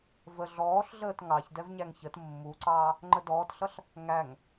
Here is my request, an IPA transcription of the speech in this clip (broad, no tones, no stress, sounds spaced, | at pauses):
v ə ɮ ɔː ɬ ɮ əː t ŋ ɑ ç d ɛ v ɲ æ ŋ ç ə t mː u ǀ ɑː | ŋ͡ǃ ə d ɔː t ɬ ʌ ɬ | ŋ æ ŋ